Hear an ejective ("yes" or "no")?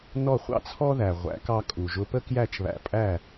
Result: yes